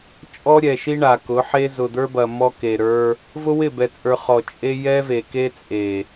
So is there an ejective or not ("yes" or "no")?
yes